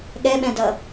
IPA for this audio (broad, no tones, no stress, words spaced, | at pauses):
ɠɛɓɛ̃dʌ